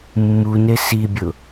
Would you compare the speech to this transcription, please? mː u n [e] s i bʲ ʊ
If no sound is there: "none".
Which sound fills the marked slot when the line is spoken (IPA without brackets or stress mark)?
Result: e